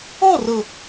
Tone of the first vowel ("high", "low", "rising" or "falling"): falling